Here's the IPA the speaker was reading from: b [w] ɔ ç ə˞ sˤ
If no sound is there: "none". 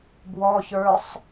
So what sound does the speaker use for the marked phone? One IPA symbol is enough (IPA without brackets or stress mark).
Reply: w